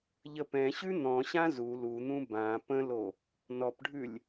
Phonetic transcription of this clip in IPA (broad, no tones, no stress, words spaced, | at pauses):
ʎəpɛ̃ɕʉ n̪ɔ̃ɕã zu lun̪ũ bã pə̃lo | nɔpɖʱʉlʲ